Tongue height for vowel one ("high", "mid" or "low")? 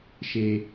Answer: mid